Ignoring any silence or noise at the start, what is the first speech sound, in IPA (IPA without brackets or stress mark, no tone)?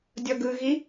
dʲ